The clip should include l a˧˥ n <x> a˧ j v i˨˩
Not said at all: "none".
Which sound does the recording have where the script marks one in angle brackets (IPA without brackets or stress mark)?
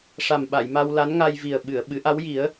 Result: ŋ